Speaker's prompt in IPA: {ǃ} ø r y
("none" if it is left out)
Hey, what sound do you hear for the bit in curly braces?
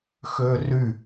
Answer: x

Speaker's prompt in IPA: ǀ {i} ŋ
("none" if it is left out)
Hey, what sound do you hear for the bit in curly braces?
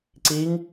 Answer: i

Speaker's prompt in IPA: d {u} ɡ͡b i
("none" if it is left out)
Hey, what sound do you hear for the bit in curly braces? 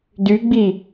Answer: y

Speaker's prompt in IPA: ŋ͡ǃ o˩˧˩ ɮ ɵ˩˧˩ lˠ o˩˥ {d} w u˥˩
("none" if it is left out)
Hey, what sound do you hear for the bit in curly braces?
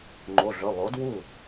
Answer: d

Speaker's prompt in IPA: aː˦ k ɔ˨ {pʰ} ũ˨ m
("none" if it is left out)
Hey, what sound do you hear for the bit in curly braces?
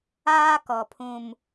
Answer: pʰ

